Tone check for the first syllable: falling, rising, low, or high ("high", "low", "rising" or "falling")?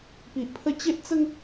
low